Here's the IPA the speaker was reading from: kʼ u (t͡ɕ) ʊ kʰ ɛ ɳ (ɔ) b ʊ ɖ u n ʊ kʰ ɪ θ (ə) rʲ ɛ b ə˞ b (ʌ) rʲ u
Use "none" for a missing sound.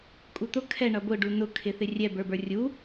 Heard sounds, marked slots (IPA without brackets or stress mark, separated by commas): t̪, ʌ, ɪ, ə˞